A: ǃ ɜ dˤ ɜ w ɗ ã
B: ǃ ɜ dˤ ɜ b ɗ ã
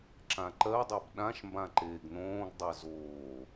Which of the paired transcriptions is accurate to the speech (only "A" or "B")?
B